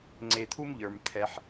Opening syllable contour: low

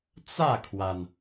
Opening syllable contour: falling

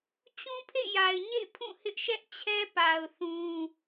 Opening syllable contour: high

